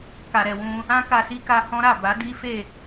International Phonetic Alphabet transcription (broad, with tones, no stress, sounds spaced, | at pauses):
k a˨ ɾ ɛ˨ w ũ˧ | ã˦ k a˧ s i˦ k a˧ h ɔ̃˦ ɾ a˦˨ b a˨˦ d i˦ f e˦˨